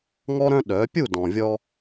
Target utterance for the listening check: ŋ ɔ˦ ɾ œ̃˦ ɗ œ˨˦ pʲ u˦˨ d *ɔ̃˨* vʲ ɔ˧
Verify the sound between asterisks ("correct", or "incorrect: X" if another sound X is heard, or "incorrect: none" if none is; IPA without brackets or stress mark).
correct